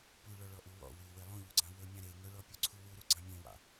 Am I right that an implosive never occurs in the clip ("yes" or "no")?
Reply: yes